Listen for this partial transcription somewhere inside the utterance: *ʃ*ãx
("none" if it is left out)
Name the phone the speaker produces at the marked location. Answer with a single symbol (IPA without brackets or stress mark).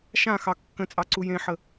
ʃ